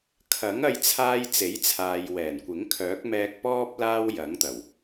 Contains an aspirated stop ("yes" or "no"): yes